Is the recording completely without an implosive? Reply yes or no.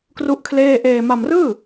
yes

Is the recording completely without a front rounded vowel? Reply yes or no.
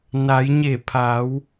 yes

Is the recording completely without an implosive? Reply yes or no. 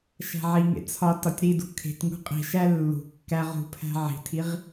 yes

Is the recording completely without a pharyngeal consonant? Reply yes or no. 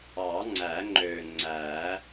yes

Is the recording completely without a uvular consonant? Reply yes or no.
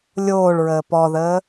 yes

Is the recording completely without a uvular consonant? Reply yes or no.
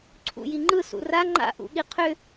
no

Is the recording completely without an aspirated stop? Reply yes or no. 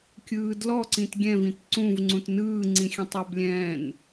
yes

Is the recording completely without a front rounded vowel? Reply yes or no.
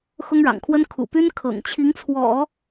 no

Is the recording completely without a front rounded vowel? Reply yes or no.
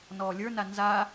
yes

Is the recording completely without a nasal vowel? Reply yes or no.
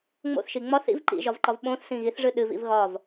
no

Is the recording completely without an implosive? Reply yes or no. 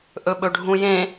no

